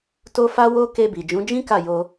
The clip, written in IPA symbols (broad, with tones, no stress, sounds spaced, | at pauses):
t o˦ f a˦ w o˦ k e˧ b i˨ d͡ʒ ũ˨˦ d͡ʒ ĩ˦ k a˦˨ j o˧